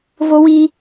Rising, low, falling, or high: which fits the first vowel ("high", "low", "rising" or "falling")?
high